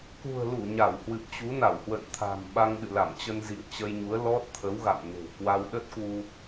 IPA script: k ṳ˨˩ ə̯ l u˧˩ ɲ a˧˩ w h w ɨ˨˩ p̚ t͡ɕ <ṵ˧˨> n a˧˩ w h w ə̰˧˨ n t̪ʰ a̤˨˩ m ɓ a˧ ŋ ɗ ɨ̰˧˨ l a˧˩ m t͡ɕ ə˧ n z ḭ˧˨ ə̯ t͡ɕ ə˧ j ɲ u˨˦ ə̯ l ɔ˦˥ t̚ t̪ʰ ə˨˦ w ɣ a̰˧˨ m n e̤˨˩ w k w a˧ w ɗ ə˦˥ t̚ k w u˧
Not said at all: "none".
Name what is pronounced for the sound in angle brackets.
u˨˦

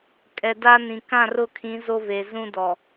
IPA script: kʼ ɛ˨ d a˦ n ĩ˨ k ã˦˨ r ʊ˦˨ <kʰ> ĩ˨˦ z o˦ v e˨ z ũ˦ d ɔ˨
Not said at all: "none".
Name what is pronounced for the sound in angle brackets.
kʰ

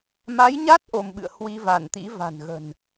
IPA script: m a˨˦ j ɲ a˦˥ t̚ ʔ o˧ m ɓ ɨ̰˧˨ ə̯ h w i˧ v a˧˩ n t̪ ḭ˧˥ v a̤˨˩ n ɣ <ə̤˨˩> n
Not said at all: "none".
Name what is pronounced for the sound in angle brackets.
ə̤˨˩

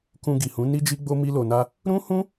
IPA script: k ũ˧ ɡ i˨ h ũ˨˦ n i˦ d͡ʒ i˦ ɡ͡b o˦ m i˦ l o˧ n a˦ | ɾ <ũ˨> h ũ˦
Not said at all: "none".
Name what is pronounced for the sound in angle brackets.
ũ˦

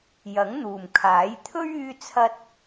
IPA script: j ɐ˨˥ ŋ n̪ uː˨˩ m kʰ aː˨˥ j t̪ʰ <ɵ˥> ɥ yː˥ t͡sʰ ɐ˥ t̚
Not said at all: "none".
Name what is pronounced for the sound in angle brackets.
ɵ˥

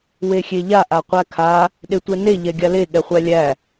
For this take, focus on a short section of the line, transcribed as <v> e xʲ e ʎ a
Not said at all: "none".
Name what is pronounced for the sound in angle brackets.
w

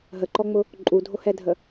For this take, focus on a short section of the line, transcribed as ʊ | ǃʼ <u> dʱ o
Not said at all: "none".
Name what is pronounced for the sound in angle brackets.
u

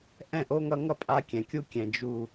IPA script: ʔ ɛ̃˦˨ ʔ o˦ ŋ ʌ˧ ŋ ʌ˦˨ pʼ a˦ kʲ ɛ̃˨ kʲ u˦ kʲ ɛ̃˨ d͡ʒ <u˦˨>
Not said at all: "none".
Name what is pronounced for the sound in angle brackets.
u˨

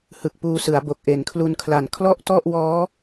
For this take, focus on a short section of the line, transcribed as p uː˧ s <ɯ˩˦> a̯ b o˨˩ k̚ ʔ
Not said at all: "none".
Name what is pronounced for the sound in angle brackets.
ɯ˩˦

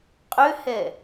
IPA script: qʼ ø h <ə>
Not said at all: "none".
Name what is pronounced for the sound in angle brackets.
ɛ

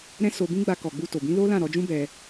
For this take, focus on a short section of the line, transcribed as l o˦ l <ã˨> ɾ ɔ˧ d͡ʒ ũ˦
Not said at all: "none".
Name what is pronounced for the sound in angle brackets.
ã˦˨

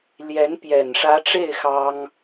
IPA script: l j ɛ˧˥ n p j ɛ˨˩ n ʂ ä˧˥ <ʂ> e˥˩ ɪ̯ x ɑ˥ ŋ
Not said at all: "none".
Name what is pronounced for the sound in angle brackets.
ʈ͡ʂ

